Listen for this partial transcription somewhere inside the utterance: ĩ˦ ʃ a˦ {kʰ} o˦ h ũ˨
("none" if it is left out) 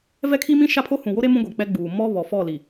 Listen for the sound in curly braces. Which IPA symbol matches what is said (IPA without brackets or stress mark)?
pʰ